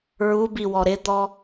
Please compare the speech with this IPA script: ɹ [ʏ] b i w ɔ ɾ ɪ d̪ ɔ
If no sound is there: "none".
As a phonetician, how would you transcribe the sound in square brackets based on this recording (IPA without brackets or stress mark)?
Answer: u